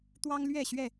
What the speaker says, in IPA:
t̪ w ɑ˦ ŋ l ɥ ɛ˥˨ ɕ ɥ ɛ˥˨

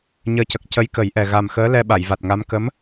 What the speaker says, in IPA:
ɲ əː˨˩ c ə˨˩ k̚ c ə˧˥ j k ə˨˩˦ j ʔ ɛ˨˩ ɣ a˨˩ m x əː˧˥ l ɛ˧ ɓ a˨˩˨ j v a˨˩ t̚ ŋ a˧˥ m k ə˧˥ m

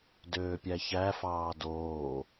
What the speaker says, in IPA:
d øː pʲ æ ç æ f ɑː d oː

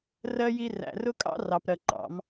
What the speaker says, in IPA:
r ɜ˨ j i˨ r æ̰˨ r ʊ˦ kʼ ɑ̰˦ r ɑ˨ p ɾ ɜ˨ ǃ ɑ̰˨˦ m

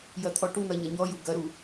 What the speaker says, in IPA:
j ɐ t̪ʰ ɔ ʈ u n̪ ɐ ɲ ɐ ɲ ɔ j u ɡ ɐ ɾ u

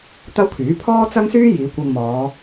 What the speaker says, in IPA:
t̪ ɐ˥ w kʰ yː˨˥ pʰ ɔː˥ t͡s ɐ˥ ŋ s yː˥ j iː˨˧ kʷ ɐ˧ ŋ m ɔː˨˧

